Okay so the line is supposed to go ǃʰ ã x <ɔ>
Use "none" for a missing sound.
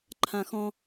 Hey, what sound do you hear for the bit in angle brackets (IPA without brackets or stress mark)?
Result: ɔ̃